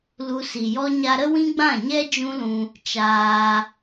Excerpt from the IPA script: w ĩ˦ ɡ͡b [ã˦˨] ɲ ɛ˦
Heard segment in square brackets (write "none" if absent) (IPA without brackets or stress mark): ã˦˨